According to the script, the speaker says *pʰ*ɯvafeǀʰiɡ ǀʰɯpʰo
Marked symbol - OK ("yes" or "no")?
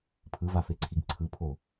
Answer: yes